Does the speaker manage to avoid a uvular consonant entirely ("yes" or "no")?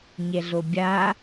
yes